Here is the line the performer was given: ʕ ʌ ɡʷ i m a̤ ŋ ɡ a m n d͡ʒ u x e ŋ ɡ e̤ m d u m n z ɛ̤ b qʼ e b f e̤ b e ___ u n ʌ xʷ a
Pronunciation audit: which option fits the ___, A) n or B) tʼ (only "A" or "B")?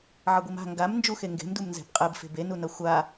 A